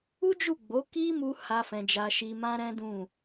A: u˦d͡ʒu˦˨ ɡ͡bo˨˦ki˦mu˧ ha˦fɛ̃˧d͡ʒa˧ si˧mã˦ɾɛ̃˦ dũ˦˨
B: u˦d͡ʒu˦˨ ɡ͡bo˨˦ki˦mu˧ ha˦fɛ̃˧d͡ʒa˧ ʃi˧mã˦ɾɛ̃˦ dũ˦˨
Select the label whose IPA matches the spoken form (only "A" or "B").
B